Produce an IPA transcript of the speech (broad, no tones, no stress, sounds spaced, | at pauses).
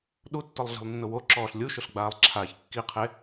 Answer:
ɗ u tː ʊ lˠ ɮ i̤ lˠ nː ʊ w o ǁ ɔː ɬ lʲ u ʃ ʊ ɬ ɡ͡b aː lˠ ǁʰ aː ç kː i qʰ e